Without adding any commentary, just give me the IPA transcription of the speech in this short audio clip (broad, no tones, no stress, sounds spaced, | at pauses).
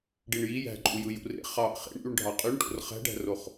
ɖ i ɳ j i j æ̤ ǃʼ u j ɯ j ṵ r ḛ χ ɑ ʔ χ ḛ ɳ ʔ y ɳ ɖʱ ɑ qʼ y ɳ ʈ o̰ r χ æ̤ ɖ æ̤ r o χ